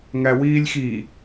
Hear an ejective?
no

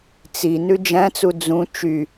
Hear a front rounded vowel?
yes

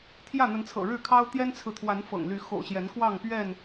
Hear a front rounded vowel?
yes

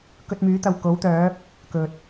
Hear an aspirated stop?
no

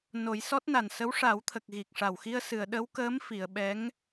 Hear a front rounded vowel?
no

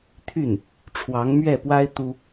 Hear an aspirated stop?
yes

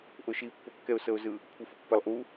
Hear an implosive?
no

